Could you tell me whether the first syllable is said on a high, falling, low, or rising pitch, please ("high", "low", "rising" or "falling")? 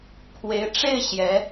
rising